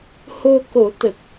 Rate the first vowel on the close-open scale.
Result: mid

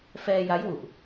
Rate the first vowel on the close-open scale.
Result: mid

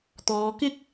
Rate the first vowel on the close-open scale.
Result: mid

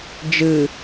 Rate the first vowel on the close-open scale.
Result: close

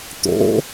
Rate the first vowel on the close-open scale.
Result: mid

